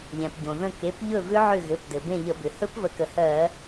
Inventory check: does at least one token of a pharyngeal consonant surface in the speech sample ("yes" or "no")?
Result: yes